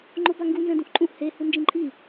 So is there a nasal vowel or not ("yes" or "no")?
yes